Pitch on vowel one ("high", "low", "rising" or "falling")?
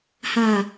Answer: low